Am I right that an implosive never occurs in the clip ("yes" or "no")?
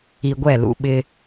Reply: no